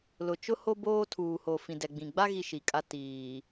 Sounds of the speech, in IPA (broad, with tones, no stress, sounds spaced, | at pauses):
l ʊ˨ t͡ʃ ʊ˦ h o˦ b oː˦ tʰ uː˨ h o˨ f ĩ˨ d ɛ˨ ɡ͡b ĩ˨ ɡ͡b a˦ ɣ i˦ ʃ i˨ kʼ a˦ t iː˨